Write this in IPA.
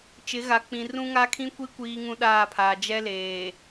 t͡ʃ ɪ˨˦ ɣ a˨ k͡p ĩ˨ r ũ˦ ŋ a˦ kʰ ĩ˦ kʷ i˦ kʷ iː˦ ŋ ũ˦ ɗ aː˦˨ pʰ aː˨ d͡ʒ ɛ˦ l eː˨

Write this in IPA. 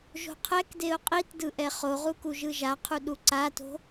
ʒ o̤ qʰ ɛ k d e ʊ̯ qʼ i t d ɯ ʔ ɛ χ o ʁ u k u ʒ ɯ ʒ a qʰ u ɗ u ǀ a t o̤

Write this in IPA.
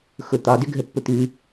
x ʊ t̪ ɒ d ʏ ɡʱ ə pː ʊ t̪ ʉ

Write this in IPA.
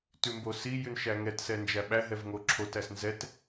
t ʉ m b o s i j ʉ n ʃ æ ŋ ɛ t s ɛ n d͡ʒ æ ɓ æ ɦ ɛ v ŋ o ǁʰ o t æ s n z ɛ t

